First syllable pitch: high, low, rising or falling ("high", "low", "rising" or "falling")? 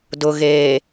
low